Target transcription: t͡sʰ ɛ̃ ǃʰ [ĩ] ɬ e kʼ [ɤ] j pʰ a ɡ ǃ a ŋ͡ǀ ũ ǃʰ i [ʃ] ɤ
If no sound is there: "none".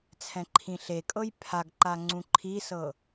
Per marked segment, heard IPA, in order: ĩ, ɤ, s

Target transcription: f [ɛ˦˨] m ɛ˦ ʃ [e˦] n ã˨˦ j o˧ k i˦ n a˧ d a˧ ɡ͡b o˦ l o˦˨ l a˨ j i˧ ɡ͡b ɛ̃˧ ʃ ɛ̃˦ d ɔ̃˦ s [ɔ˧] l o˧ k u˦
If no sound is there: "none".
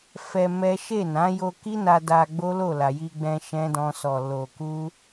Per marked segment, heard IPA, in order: ɛ˧, e˦˨, ɔ˧

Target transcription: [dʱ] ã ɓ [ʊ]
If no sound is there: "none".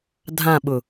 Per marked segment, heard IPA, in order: dʱ, ʊ

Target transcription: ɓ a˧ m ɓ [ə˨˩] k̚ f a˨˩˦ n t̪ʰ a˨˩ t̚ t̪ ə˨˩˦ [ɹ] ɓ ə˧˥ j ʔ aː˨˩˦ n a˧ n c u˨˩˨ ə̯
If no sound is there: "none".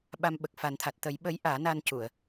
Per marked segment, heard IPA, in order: ə˨˩, j

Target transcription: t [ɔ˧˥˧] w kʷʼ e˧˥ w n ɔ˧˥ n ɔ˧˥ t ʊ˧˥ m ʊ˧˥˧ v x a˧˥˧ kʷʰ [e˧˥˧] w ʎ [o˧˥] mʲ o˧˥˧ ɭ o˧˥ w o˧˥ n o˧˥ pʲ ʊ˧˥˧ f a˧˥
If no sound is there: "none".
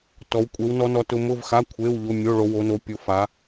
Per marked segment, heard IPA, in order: ɔ˧˥, e˧˥˧, o˧˥˧

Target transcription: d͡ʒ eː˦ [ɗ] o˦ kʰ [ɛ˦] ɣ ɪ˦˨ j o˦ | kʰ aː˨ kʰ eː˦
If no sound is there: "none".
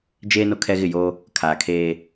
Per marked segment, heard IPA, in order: n, ɛ˦

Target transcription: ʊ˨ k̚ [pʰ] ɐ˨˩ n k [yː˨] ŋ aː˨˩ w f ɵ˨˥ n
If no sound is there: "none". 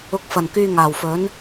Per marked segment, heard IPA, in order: f, yː˨

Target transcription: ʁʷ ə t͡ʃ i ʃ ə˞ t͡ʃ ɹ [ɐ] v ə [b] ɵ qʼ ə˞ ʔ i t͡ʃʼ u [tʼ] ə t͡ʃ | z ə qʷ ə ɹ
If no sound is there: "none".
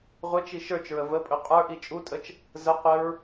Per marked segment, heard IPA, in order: ə, pʼ, tʼ

